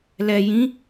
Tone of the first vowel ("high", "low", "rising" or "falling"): low